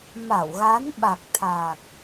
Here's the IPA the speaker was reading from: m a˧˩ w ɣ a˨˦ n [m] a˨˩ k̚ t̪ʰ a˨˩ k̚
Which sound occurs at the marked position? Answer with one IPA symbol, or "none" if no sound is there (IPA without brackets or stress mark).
ɓ